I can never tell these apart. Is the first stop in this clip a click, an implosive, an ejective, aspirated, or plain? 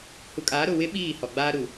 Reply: ejective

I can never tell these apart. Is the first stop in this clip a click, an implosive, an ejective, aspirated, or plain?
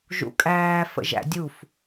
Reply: ejective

